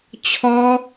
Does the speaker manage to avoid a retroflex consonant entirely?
yes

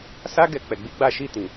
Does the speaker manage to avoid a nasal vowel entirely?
no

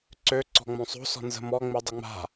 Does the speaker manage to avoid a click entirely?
no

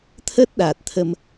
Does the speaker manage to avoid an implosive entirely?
no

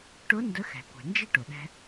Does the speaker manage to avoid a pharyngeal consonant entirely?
yes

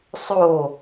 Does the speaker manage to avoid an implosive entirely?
yes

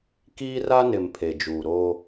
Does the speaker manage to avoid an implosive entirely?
yes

